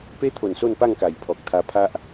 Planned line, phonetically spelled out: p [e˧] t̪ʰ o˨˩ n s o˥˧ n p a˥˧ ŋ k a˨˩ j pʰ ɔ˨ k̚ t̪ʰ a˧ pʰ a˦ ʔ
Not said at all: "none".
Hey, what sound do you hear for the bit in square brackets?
e˦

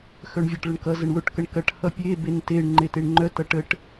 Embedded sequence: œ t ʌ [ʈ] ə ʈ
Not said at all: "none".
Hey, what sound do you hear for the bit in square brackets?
ʈ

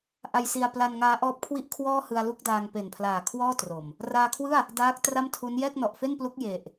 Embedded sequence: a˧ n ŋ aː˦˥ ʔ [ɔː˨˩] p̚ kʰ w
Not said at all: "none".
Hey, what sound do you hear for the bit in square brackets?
ɔː˦˥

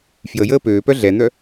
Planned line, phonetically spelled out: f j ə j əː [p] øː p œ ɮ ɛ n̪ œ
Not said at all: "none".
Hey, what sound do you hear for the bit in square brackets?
p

